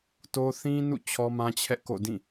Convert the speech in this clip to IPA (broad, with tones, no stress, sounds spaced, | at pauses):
t o˦ θ ĩ˦ n ṵ˦˨ t͡ɕʰ ɔ˦ m ã˦ t͡ɕʰ ɛ˦ ʔ k o̰˦˨ d ĩ˦˨